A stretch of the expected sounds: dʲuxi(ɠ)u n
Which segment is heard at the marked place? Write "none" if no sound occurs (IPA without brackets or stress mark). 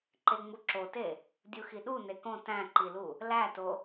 ɗ